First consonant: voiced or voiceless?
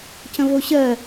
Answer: voiceless